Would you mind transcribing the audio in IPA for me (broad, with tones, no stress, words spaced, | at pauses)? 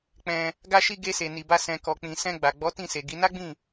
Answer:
k͡pɛ̃˧ | ɡa˧ʃi˧ ɡe˧se˨ ni˨ba˧ sɛ̃˨kɔ˨k͡pĩ˨sɛ̃˧ ɡ͡ba˨ ɡ͡bɔ˨˦tĩ˦˨ se˨ɡi˨˦ na˦ɡ͡bĩ˦˨